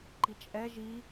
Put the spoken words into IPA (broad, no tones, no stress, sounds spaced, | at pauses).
ǃ i t͡ʃʼ ɛ ʒ i